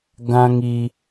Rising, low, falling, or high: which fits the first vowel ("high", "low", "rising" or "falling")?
high